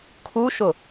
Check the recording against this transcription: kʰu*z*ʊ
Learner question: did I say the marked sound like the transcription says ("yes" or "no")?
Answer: no